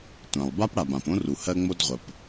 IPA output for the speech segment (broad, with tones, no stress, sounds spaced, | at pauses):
tʷ ã˩ lˠ b a˥ p ɽ a˩ b ã˩ p õ˥ r u˩ h ɜ˥ ŋ͡m o˥ d ʁʷ ə˩ p